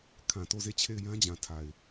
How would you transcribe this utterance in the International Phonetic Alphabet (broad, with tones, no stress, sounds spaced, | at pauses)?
kʰ ã˨ t o˦˨ z e˦˨ t͡ɕʰ e˦˨ ɪ̯ j ã˦ d͡ʑ ã˨ tʰ a˨ ɪ̯